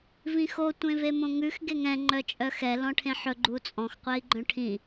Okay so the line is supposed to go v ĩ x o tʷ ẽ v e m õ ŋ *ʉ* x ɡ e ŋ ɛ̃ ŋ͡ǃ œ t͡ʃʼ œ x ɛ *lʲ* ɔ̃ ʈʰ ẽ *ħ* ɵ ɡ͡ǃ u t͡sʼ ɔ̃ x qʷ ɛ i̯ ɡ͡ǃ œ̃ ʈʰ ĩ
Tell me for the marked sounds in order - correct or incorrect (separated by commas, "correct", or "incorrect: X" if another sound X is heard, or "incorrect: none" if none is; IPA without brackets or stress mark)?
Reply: correct, incorrect: l, correct